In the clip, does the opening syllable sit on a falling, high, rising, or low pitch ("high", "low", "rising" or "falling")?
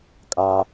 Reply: high